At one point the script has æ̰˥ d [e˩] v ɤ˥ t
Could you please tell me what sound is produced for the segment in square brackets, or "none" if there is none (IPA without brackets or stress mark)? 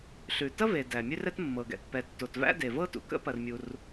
e˩